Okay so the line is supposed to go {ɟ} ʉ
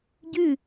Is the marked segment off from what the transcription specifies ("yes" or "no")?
no